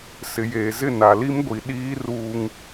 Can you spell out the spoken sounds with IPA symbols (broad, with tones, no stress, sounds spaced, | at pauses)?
s ɪ˨ j eː˨ z ɪ˦˨ n a˨ l i˦ m ɡʷ i˨ ɗ iː˦ r uː˦ ŋ